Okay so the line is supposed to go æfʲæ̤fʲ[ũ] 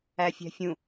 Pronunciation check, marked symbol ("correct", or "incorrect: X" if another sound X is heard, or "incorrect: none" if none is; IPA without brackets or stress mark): correct